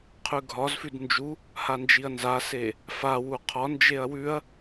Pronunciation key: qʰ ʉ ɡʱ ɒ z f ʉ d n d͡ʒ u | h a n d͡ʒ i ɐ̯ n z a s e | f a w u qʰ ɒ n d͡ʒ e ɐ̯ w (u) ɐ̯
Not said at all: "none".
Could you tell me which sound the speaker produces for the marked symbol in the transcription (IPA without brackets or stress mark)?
ʉ